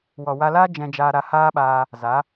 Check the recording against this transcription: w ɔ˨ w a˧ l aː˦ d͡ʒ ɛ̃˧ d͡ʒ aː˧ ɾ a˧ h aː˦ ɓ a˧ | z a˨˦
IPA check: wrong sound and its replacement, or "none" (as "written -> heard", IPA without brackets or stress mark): none